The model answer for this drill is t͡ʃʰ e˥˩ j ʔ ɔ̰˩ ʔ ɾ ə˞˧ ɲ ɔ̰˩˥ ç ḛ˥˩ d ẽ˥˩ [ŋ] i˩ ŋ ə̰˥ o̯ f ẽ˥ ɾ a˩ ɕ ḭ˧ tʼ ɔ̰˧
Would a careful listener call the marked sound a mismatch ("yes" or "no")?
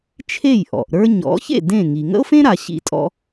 no